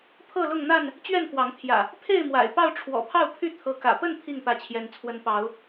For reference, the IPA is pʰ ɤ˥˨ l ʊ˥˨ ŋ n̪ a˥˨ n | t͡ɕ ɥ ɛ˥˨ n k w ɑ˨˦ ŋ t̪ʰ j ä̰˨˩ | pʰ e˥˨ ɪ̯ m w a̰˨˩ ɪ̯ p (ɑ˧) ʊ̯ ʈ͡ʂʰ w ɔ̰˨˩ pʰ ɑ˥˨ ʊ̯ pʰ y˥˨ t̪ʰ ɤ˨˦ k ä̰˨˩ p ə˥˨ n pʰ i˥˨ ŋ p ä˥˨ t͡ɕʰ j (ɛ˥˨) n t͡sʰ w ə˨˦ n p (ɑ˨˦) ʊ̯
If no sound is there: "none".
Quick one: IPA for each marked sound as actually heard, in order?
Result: ɑ˥˨, ɛ˦, ɑ˨˦

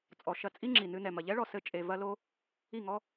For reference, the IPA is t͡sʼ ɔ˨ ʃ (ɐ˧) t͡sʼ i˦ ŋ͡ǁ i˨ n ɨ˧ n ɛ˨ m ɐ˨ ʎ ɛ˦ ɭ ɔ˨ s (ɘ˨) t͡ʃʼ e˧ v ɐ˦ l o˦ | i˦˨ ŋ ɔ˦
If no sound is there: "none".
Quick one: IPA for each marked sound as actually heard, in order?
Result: ɐ˧, ɘ˦

